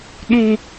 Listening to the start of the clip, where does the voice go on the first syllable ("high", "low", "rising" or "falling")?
high